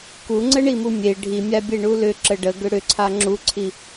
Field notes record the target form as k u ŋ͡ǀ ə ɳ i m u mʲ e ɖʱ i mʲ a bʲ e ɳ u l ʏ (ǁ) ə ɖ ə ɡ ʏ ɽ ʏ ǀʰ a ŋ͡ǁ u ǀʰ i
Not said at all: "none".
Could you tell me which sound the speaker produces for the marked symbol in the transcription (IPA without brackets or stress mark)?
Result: ǁ